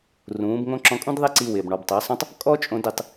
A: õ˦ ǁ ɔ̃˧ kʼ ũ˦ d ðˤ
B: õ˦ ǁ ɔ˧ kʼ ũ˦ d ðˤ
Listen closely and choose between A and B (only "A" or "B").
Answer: A